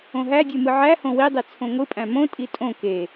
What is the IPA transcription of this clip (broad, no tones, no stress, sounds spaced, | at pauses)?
õ ɦ æ dʲ ɯ m ɯ ʕ æ h õ w i dˤ i t͡sʰ õ ŋʷ ɯ pʼ æ̃ m õ tʼ i tʼ õ k e